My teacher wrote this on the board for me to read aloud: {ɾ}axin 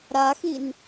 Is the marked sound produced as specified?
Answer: yes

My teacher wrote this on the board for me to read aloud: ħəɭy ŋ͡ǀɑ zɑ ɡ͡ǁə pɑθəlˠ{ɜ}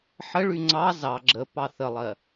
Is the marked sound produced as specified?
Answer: yes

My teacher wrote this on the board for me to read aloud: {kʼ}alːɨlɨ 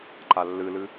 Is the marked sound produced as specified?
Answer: no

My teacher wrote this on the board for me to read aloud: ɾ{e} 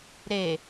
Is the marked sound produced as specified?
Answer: yes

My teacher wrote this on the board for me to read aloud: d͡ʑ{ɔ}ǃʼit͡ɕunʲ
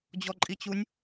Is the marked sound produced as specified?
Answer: yes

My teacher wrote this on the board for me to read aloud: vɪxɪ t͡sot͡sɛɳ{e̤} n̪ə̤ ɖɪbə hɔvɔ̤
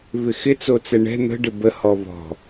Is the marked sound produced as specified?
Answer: no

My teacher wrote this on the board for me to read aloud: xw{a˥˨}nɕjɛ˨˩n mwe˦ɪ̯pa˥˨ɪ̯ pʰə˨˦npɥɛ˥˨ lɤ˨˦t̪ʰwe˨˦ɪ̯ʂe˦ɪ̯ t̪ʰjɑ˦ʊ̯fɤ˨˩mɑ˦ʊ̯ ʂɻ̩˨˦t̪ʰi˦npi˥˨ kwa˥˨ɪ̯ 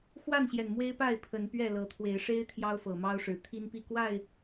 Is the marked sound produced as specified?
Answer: yes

